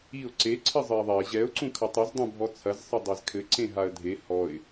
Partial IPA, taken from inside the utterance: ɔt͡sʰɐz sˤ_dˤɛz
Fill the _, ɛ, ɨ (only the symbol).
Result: ɨ